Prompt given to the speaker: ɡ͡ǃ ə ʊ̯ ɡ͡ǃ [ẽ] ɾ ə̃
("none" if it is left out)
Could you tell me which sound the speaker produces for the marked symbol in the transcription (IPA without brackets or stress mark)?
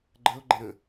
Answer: ɛ̃